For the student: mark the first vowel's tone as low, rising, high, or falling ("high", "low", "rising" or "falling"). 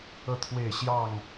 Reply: falling